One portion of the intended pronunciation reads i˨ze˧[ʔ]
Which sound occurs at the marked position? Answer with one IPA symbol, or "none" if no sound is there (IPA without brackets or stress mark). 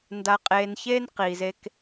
k